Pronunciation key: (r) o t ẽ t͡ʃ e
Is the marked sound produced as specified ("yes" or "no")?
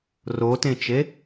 yes